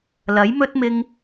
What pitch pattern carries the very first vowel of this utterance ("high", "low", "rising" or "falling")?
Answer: rising